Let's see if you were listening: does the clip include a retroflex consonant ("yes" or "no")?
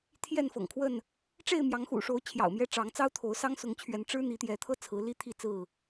yes